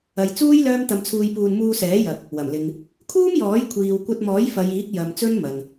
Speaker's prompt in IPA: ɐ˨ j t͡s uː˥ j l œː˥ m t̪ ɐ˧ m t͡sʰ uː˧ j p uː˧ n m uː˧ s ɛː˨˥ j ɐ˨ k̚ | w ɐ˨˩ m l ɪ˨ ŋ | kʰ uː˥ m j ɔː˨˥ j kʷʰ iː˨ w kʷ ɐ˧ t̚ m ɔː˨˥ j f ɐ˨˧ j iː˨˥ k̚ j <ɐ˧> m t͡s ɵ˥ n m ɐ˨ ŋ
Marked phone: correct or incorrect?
incorrect